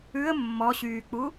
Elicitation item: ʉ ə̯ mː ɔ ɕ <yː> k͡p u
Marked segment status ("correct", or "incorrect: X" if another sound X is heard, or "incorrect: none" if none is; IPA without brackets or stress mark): correct